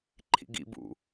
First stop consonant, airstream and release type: click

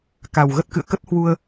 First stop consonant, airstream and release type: plain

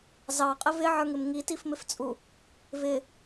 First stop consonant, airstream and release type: ejective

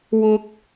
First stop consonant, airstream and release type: plain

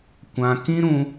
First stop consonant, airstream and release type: plain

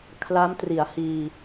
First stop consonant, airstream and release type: aspirated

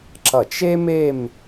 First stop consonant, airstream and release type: click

